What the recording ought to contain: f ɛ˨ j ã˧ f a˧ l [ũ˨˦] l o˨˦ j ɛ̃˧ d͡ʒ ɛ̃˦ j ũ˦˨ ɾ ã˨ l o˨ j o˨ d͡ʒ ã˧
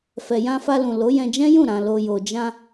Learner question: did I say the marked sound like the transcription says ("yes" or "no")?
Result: no